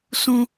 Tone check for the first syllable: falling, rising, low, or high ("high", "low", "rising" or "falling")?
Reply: high